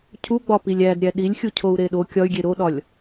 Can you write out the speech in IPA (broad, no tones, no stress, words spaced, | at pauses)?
cʰuɡ͡bɒpilʲ ædɾʲæ ɗilʲxʲucʰou̯ ɾeɗo kʲɒy̯ɡʲe ɾoɗɒlʲ